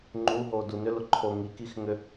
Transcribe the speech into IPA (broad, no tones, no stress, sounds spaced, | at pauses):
ŋ͡ǃ u ɦ o d u n ʏ l ʊ ǃʰ o ŋ i k i x ŋ ʏ